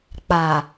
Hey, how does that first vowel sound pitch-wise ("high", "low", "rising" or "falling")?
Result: low